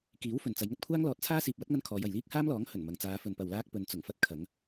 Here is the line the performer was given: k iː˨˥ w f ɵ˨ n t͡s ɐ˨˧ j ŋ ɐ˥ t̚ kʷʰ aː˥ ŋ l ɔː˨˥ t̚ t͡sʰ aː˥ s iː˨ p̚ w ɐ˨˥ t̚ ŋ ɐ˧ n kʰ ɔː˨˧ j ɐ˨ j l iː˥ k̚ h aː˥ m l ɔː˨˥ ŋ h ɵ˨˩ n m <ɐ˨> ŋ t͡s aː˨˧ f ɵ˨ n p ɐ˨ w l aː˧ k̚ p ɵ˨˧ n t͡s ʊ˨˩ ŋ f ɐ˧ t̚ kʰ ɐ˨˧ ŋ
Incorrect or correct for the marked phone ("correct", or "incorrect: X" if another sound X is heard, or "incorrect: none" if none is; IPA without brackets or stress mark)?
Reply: correct